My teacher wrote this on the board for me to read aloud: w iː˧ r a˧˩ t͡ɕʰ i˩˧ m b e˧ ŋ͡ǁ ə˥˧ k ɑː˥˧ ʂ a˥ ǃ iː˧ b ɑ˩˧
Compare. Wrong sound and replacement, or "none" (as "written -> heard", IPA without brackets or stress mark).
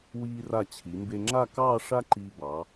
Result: ə˥˧ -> a˥˧